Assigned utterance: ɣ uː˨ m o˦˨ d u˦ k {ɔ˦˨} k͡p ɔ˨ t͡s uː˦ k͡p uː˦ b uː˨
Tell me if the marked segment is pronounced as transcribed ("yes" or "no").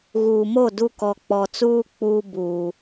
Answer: no